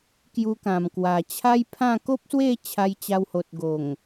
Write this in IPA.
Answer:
k j u˧ k ã˨˩ m k w a˨˩ t͡ɕʰ a˦ j pʰ ã˥˧ k o˦ p̚ s w e˥˧ t͡ɕʰ a˧ j t͡ɕ a˧ w h o˨ t̚ ɡ o˨˩ ŋ

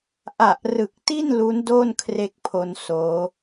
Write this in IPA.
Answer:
ʔ a˨˩ ʔ r ɯ˨˩ k̚ t i˥˩ n l u˦˥ n d o˥˩ n kʰ r e˥˩ k̚ pʰ o˧ n s oː˦˥

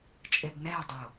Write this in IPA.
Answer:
t͡ʃʼ e b n ɛ e̯ dˤ o

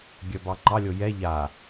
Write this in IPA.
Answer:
ɡʲ œ b ɑ ŋ͡ǃ ɑ lʲ o j ɛ ʎ a

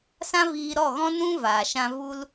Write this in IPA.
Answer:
s ã˦ v iː˧ ɾ ɔ˦˨ ɣ ɔ̃˦ n ũ˦ v aː˨ ʃ ã˧ v u˧ l

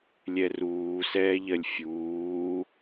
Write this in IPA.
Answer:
lʲ ɛ r uː s ɛː ʎ ɜ lʲ fʲ uː

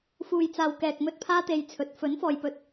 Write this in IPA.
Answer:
f uː˨ j t͡s aː˨ w k ɛː˨ k̚ m ɵ˧ t̚ pʰ aː˥ t̪ e˧ j t͡sʰ ɵ˨ t̚ f ɵ˨˥ n f ɔː˨ j p ɵ˨˥ t̚

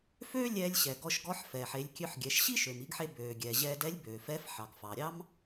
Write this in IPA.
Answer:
f øː˥ lʲ ɛː˧ lʲ ɕ ɛ˩ ɡ ɔ˧ ʃ ɡ ɔ˧˥ ħ f ɛ˩ ħ e˩˧ lʲ kʲ ø˧ ħ ɡʲ ɛ˩˧ ʃ ɕ i˥ ʃ ø˩ m i˧ ɡ ħ e˧ b øː˩ ɡʲ ɛː˩ ʑ ɛː˧ d ɛ˧˥ lʲ b øː˩ f ɛː˧˥ f ħ ɑ˩ ɡ f ɑ˩ ɾʲ ɑ˥ m

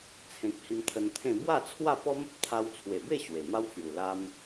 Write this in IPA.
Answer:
t͡sʰ ẽ˨ k̚ h i˧ m t̪ʰ ə˧ n t̪ʰ ẽ˥˧ b w a˥˧ t͡sʰ w a˥˧ p ɔ˦ m ə˦ p̚ t̪ʰ a˦ w t͡sʰ w e˨˩ b e˥˧ ɕ w e˨˩ m a˦ w t͡s j u˨˩ l a˧ m

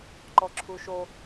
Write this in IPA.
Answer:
ǃ ɔ ǁʰ u ʃ o

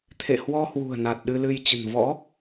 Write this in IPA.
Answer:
t̪ʰ ḛ˧˨ h w ɔ˧ h w ṳ˨˩ ə̯ n a˨˩ t̚ ɗ ɨ˧ l ɨ˧ j t͡ɕ ə̤˨˩ n v ɔ̰˧˥

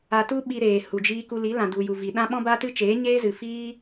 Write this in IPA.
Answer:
a˧ t u˦ ɓ i˧ ɾ eː˨ h u˨ d͡ʒ iː˧ k u˧ l i˨˦ l ã˨ d u˨ j u˨ v i˨ ɗ ã˦ ɓ ɔ̃˦ b a˦ t ɨ˦ t͡ʃ eː˨˦ ɲ eː˦ z ɨ˨ f iː˦

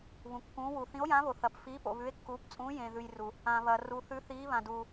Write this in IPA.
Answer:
β ũ˩ kː ũː˨˦ w u˩ θ ĩ˨˦ o̯ j ãː˨˦ β o˩ θ ɐ˩ p f iː˨˦ p o̰˩ β ʉ˨˦ e̯ kː uː˨˦ p t͡sʼ ũː˨˦ j ẽː˩ ð ʉ˩ j r u˩ | ã˩ β ɐ˩ r u˩ θ ʉ˨˦ θ iː˨˦ β ã˩ d uː˩

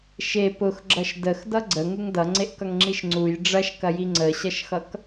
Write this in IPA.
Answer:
ʃ e p ʊ x ɡ͡ǁ ʌ ʃ d ə x d ʌ ɡ͡ǀ ə ŋ u ŋ d ʌ ŋ͡ǀ e ʔ k ʌ ŋ ŋ͡ǁ i ʃ ŋ͡ǀ u j ɖ͡ʐ ɐ ʃ k ɐ j i ŋ͡ǀ ə ɕ ʌ ʃ x ʌ k

